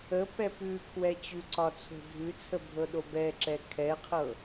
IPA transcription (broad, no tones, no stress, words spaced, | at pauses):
əpɛ pʉ kʰwɛt͡ɕʉǀɒ t͡sʰo̤dʱʉt͡sʰə bʱɤɗobɛǁɛ kʰɛqʰɤ